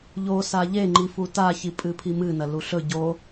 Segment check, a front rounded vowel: absent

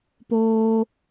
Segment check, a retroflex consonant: absent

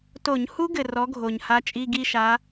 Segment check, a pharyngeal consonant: absent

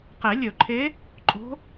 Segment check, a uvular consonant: present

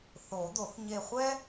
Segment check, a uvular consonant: present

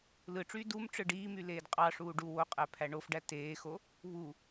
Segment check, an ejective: present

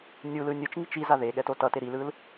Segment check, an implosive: present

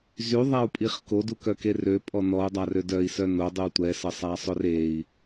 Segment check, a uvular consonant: present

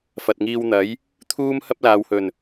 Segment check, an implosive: absent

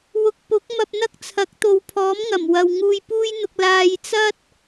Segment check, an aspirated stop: present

